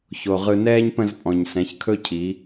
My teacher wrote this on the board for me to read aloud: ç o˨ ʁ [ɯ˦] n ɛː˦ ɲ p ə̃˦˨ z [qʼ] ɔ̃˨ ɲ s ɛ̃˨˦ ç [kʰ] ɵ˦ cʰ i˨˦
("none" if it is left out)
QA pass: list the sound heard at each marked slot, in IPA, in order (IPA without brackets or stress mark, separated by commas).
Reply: ɯ˧, pʼ, kʰ